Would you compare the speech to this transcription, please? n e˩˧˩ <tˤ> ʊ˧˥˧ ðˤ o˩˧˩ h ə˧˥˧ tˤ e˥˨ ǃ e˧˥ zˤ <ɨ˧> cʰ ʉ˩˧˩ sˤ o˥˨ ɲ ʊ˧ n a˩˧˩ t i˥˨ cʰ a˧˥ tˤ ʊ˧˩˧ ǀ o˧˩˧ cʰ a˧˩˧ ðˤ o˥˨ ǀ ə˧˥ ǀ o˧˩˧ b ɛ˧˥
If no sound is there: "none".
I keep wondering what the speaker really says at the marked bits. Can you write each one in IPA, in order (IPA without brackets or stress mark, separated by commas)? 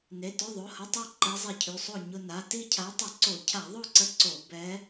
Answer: t, e˧